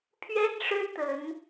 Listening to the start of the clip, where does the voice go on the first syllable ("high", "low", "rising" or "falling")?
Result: high